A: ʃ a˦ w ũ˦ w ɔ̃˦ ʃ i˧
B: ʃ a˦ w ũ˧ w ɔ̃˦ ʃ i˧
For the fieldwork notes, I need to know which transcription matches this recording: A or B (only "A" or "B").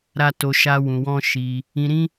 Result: B